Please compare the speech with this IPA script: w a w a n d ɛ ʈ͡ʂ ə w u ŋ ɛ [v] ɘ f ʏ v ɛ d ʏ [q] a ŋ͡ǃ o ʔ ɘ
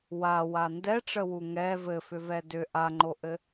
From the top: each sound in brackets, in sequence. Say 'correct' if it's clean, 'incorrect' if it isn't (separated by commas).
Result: correct, incorrect